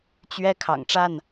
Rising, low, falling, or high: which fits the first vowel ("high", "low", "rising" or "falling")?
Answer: high